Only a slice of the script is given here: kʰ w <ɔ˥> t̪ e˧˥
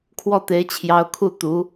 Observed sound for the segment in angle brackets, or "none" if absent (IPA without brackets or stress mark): ɔ˥˩